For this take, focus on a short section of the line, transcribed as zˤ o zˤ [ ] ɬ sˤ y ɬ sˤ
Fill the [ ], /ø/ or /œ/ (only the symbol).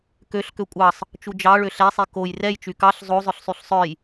œ